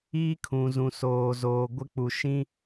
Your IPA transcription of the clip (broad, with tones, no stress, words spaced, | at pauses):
iː˦kʰũ˨zũ˨soː˨ zoː˨ɡʷɪ˦k͡pu˨ʃĩ˦